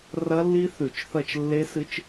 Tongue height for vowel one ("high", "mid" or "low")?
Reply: low